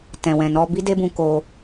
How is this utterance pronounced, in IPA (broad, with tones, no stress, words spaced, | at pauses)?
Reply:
tɛ̃˨wɛ̃˨nɔ˧ bi˦de˦bũ˧ ko˧